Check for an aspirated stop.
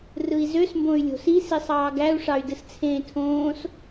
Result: present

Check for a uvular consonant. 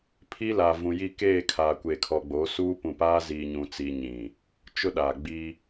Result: absent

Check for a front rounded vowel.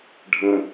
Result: absent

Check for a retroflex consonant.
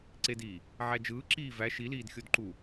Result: absent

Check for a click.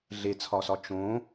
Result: absent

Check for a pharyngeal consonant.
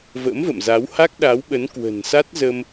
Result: absent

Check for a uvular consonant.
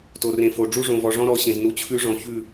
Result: absent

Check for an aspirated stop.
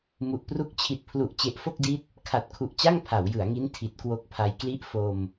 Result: present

